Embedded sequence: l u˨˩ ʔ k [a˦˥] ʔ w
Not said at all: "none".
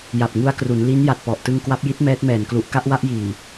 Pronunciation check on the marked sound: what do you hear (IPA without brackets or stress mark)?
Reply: a˥˩